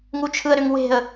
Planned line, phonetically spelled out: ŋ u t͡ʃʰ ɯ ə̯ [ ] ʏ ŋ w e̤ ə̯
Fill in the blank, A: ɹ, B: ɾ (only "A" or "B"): B